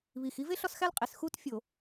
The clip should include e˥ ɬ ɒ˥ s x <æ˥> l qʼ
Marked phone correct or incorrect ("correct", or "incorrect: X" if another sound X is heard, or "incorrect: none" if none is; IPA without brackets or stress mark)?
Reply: correct